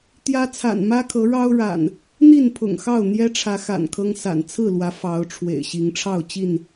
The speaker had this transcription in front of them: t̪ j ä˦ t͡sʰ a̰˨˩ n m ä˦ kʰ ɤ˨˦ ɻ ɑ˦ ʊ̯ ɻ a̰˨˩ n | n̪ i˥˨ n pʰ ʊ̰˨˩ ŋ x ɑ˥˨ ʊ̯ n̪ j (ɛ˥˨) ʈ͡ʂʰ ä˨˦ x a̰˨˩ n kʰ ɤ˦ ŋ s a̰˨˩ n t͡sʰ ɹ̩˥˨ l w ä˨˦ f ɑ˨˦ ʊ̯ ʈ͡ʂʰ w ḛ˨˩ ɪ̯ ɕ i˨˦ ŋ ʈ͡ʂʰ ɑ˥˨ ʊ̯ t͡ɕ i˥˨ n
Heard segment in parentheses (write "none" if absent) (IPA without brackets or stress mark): ɛ˦